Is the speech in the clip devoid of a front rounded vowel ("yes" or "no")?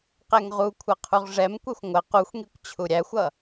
yes